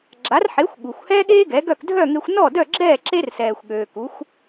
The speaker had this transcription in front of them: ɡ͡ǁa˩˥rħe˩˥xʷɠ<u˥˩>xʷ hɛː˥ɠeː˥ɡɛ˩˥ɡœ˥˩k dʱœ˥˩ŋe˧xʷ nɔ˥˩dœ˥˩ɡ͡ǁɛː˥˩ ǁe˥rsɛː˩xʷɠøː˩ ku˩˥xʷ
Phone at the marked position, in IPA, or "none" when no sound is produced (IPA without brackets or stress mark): u˩